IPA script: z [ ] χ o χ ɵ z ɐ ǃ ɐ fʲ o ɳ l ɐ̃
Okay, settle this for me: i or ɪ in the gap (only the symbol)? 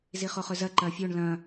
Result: i